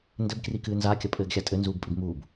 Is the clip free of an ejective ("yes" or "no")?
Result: no